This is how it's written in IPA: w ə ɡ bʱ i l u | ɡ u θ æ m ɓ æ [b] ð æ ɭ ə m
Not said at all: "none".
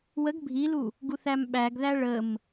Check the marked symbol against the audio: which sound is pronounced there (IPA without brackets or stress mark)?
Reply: ɡ